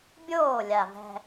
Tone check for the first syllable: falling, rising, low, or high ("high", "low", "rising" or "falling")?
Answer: falling